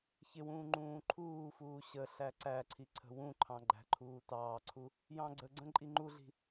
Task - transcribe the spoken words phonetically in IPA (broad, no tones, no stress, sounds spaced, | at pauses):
ç ɪ w ũː ŋ͡ǃ ũː ǃʰ uː f uː ɕ ə ɬ æ ǀ æ ǀʰ i ǀʰ ə̤ w ũ ǃʰ ɑ̃ ɡ͡ǃ æ̤ ǃʰ uː t ɑː ǀʰ u | j ɑ̃ ɡ͡ǀ ə ɡ͡ǀ ə̃ ǃʼ i ŋ͡ǃ u ɮ i̤